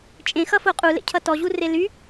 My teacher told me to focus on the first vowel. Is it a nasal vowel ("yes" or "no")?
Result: yes